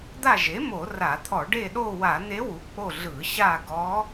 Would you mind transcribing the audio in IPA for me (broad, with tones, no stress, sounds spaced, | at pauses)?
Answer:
d̪ a˦˨ ʒ e˩˥ m o˧˩˧ r a˧˩˧ t̪ʰ ɔ˧˩˧ ɖ e˦˨ ɗ o˦˨ w a˧˩˧ n̪ e˧˥ w u˩˥ k͡p o˦˨ ɮ ɯ˧˩˧ ɕ a˦˨ ɡ ɔ˧˥